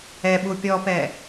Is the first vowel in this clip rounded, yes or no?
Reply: no